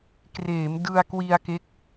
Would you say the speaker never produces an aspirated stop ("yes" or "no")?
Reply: yes